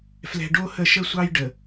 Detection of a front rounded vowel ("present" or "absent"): absent